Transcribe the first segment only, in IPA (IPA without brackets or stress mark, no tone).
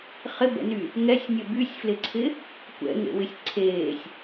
χ